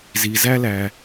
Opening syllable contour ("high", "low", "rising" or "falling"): low